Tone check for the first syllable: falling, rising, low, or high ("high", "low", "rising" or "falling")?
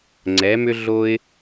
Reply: rising